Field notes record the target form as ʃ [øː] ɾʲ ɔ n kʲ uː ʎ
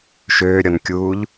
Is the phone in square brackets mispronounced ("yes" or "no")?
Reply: no